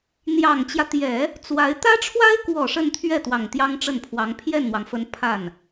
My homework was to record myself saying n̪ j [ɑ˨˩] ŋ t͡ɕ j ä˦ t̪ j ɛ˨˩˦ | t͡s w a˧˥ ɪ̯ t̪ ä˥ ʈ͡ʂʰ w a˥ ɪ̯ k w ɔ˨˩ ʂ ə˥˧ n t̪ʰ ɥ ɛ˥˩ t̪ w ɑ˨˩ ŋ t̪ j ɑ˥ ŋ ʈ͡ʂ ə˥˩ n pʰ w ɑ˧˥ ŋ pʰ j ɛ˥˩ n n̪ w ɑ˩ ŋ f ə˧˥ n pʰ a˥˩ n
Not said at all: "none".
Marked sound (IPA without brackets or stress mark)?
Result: ɑ˨˩